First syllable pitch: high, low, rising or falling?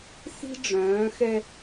high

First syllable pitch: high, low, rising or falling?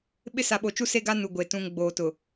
high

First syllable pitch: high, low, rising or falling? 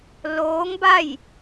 rising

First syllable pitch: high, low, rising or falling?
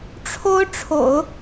high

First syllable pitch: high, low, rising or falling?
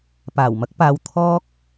low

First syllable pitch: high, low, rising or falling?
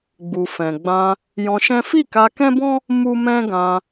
low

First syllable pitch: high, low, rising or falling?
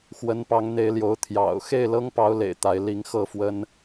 rising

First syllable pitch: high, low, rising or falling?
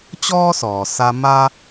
high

